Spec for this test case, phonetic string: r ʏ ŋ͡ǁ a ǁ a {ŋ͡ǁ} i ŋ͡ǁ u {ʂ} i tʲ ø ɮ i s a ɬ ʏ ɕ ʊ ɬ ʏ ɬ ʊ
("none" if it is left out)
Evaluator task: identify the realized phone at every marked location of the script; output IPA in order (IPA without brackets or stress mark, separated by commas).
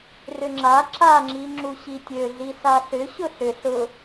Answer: ŋ͡ǁ, ɕ